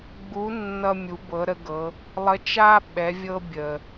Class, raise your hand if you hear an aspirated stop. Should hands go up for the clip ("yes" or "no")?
no